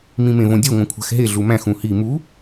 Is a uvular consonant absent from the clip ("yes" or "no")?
yes